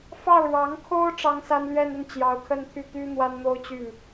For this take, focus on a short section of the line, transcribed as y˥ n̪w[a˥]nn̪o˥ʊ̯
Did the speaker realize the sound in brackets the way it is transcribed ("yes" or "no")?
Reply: yes